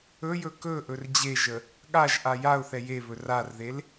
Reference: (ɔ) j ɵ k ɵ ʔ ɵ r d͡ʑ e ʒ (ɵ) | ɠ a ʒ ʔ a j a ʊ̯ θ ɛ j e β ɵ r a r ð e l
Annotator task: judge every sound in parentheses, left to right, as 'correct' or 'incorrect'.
incorrect: ɵ, incorrect: ə

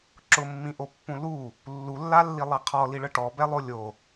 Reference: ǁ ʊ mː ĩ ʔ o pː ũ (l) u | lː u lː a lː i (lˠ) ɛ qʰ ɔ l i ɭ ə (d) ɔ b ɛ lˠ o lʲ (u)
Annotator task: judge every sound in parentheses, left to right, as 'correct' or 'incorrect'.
correct, correct, incorrect: ʈ, incorrect: o

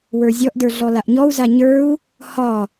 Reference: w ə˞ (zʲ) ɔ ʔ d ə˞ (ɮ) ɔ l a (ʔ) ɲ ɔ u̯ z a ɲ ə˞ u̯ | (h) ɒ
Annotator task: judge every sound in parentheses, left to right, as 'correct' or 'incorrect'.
correct, correct, correct, correct

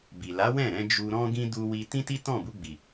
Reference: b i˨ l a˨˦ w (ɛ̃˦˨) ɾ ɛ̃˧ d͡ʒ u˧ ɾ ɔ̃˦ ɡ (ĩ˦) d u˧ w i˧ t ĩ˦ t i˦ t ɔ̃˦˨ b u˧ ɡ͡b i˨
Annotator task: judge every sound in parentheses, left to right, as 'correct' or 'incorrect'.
correct, correct

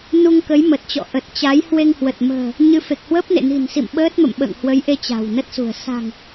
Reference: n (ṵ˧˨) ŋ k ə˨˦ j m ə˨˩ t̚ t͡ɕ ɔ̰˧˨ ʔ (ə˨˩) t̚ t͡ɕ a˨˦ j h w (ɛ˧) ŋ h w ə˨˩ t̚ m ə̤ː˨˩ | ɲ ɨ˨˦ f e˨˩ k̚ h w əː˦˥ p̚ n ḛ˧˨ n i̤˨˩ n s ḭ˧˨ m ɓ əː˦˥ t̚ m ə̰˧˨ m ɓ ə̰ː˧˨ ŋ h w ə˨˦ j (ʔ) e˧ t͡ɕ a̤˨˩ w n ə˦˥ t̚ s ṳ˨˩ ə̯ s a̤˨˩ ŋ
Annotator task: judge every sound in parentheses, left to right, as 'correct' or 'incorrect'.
incorrect: u˧, correct, incorrect: e˧, correct

